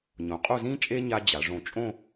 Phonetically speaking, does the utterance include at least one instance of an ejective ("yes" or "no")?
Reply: yes